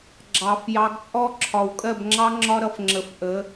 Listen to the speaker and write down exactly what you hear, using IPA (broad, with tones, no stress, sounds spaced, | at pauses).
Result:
ɡ͡ǁ ɑ˨˩˦ f j ɑ˨˦ ɡ t͡sʼ ɔ˦˥ ǁʰ ɒ˨ w kʼ ɜ˥˨ b ŋ͡ǁ ɑ˦˥ ŋ͡ǁ ɒ˦˥ ɾ ʌ˨˦ f ŋ͡ǁ ə˨˩˦ f ʔ ə˨˦